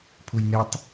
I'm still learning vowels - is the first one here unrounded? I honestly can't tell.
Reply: no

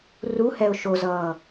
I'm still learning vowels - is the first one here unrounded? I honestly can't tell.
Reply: no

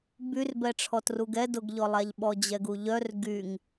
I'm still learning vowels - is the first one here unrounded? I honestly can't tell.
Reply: no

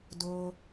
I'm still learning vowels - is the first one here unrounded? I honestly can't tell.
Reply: no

